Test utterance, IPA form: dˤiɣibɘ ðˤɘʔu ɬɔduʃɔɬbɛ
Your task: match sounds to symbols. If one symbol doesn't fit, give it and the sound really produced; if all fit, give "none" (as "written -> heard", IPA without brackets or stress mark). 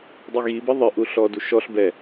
none